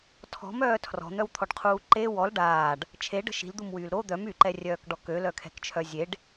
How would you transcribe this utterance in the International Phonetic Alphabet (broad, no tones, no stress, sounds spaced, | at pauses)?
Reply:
tʰ ɔ̤ m œː tʰ r ɔ̤ n̪ œ w t̪ʰ ɔ ɖ qʰ uː ǃ e w ɔ l ɖ aː ɖ | t͡ʃʰ e ɖ ə̤ ʃ i̤ l d̪ u m w yː l ɾ o d̪ œ m y ǃ ɛ rʲ œː k ɖ ɔ k ø l œ kʰ ɛ̤ k t͡ʃʰ œ zʲ e ɖ